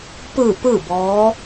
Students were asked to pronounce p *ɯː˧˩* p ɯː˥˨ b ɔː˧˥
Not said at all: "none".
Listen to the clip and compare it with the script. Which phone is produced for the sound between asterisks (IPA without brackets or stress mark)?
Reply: ɯː˧˩